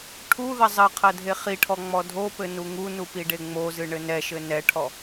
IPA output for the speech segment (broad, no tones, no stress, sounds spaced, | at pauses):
ʈʰ u ð ɐ zˤ ɘ qʰ ɐ dʱ e χ i ʈʰ ɔ ŋ͡m ɔ dʱ o p ɘ n u ŋ u n u p i ɖ e ŋ͡m o z ɨ ɳ ɘ n ɛ ʃ ɘ n ɛ ʈʰ ɔ